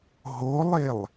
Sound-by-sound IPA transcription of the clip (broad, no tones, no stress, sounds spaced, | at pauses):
ɦ o lˠ e lˠ